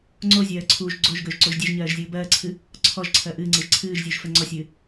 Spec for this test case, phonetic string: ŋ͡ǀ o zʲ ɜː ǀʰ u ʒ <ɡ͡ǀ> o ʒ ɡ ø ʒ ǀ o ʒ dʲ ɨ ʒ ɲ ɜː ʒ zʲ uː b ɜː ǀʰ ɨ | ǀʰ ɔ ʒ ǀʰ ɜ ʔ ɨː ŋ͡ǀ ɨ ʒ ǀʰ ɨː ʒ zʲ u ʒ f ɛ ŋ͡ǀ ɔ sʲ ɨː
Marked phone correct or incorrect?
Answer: correct